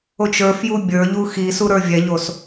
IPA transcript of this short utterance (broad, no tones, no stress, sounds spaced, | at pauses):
o t͡ʃ ə˞ f j u bʲ ə˞ ʎ u x i s u ɾ ə˞ vʲ ɛ ʎ o s